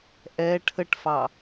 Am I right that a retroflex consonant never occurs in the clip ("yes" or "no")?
no